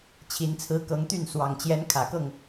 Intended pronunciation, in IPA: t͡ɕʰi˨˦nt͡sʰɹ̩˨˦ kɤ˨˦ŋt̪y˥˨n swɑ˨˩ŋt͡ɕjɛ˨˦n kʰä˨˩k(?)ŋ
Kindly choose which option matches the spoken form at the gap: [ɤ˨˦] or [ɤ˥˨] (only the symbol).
ɤ˥˨